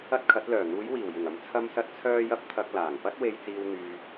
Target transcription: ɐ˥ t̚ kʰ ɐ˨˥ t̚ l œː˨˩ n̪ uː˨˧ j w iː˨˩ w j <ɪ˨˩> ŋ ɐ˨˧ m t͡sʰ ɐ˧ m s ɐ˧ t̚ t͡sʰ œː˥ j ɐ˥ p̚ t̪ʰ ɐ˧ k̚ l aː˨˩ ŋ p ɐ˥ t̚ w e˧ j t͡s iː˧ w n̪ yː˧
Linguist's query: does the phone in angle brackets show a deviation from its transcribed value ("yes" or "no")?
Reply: no